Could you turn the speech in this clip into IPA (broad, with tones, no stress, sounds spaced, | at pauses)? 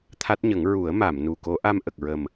t̪ʰ a˦˥ t̚ ɲ ə˨˩˦ ŋ ɹ u˨˩˦ ə̯ m a˨˩˨ m n u˨˩ k o˧˥ ʔ a˧ m ʔ ə˨˩ k̚ ɹ ə˨˩ m